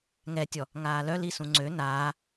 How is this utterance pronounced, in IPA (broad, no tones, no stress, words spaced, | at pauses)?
ŋɛtʲɔ | ŋaːlœli sũŋ͡ǀø naː